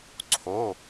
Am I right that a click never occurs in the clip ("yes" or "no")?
no